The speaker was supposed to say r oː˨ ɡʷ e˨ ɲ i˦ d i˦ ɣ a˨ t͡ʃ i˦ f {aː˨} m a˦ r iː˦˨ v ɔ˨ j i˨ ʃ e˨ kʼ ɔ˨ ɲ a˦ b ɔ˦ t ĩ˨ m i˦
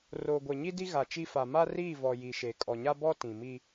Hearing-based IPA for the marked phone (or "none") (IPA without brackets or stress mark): a˨